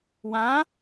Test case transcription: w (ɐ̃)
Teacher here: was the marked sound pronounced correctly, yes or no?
no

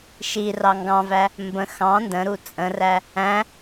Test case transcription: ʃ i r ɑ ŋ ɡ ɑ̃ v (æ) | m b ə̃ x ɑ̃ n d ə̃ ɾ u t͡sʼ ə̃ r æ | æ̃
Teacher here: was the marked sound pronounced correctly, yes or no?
yes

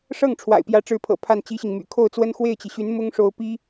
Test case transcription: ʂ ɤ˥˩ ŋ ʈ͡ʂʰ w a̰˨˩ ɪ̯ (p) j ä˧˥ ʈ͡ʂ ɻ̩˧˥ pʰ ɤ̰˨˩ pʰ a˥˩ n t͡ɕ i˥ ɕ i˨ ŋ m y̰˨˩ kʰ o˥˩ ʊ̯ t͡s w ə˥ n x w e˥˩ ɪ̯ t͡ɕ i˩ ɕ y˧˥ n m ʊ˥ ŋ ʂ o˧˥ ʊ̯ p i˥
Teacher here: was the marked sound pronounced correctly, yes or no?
yes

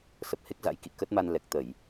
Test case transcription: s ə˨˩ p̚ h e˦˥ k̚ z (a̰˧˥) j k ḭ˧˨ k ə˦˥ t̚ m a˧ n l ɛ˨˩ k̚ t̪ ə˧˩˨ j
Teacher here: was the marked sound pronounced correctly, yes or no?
yes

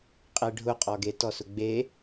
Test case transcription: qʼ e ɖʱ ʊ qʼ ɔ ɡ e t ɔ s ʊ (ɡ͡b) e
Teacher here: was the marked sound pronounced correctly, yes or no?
yes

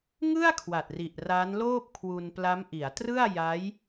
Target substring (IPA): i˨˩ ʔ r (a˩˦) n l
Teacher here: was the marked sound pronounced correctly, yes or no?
no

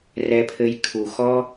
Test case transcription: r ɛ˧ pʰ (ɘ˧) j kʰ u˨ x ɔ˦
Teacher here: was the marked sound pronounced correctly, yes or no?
yes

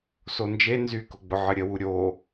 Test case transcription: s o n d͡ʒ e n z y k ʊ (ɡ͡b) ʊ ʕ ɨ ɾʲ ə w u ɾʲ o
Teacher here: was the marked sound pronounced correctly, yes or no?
yes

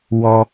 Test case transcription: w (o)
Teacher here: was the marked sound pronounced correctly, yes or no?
no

